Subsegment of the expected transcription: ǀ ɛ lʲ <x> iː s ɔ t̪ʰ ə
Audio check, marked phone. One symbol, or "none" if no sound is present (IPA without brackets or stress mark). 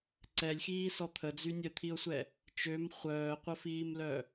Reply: x